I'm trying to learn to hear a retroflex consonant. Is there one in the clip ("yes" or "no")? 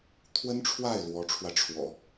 yes